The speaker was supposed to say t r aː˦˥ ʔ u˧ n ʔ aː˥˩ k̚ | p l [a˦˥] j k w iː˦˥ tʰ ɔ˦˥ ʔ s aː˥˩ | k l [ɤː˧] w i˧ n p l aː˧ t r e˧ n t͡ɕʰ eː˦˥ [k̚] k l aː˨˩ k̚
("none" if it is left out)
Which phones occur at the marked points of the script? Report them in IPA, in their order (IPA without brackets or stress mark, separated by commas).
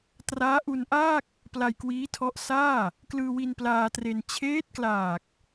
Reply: a˧, ɯː˧, t̚